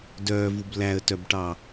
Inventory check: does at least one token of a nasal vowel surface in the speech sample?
no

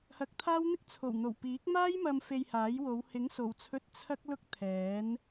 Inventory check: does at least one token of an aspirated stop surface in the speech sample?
yes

